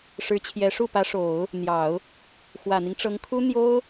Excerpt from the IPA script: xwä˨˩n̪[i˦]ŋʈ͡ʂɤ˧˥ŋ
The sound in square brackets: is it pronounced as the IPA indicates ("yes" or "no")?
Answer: yes